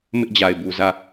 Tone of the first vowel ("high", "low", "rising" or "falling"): high